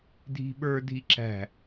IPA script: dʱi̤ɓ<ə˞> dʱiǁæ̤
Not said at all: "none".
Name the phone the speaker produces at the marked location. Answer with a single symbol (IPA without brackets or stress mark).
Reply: ə˞